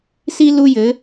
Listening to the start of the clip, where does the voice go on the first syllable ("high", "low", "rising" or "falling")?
high